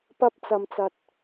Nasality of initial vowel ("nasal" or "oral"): oral